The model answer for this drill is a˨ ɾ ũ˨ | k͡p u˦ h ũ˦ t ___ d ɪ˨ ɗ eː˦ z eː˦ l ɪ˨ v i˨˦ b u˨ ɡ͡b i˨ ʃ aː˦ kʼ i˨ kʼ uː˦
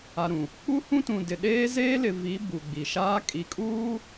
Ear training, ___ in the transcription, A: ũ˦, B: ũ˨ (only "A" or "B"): B